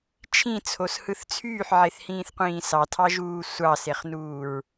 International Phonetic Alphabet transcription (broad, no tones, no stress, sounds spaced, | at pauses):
t͡ʃʰ ĩ t͡sʰ o s h ɯ θ t͡sʰ yː ħ ʕ e θ h ĩː θ qʷ ĩː s ɑ tʰ ɑ ʒ uː sʷ ɑ s e χ n uː ɹ